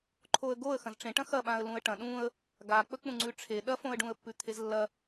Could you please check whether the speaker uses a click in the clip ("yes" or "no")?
yes